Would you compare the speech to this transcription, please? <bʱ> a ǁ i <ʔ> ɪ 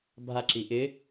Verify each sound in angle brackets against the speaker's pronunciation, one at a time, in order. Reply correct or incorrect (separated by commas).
correct, correct